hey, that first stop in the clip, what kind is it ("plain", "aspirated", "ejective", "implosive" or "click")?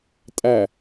ejective